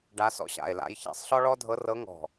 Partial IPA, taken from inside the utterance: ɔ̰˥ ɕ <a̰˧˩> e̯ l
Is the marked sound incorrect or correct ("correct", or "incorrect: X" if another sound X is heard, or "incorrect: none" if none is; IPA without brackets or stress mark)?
correct